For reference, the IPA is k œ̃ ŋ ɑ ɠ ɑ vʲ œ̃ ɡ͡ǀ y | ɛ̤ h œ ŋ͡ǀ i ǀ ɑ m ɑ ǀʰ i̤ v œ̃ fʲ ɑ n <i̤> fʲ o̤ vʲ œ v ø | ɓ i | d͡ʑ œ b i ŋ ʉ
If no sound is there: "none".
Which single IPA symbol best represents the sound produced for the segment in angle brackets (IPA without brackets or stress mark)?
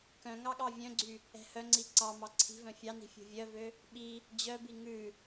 i̤